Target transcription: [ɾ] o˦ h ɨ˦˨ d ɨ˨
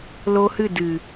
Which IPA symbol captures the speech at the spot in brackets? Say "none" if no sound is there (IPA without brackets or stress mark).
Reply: l